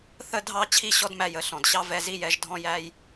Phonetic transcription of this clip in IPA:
θ ə˧ dʱ ɑ˧ t͡ɕʰ i˦ ɕ ɔ˦ d m æ˧ j ə˨ ɬ ɔ̃˨ d ɕ ɑ˦ v ɛ˧ z i˦ j ɛ˨˦ ʒ dʱ ɔ̃˦ j æ˦ j

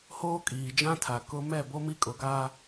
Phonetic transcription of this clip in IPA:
h oː˦ kʼ iː˨ d͡ʒ ã˦ tʰ a˨ k ʊ˦ m ɛ˦˨ b o˦ m i˦ kʼ ʊ˦ ɡ a˦

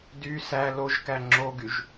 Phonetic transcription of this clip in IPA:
d y s æ l o ʒ k æ ŋ͡ǁ o ɡ y ʒ

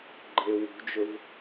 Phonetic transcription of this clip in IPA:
ɡ͡ǃ e w ṳ d͡ʒ ɵ v

